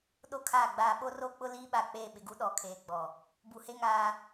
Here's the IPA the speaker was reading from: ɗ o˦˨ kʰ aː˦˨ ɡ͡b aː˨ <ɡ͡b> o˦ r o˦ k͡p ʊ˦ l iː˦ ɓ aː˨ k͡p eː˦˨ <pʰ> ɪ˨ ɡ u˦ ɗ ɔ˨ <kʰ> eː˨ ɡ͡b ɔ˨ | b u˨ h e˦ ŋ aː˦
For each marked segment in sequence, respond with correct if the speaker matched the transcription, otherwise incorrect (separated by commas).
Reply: incorrect, incorrect, correct